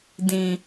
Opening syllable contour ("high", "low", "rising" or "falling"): low